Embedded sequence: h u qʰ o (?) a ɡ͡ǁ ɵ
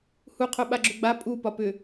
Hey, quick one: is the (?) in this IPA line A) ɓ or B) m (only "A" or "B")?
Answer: A